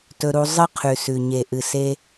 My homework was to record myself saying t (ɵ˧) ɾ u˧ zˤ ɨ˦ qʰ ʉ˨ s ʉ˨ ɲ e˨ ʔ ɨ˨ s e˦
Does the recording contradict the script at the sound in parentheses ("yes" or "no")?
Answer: no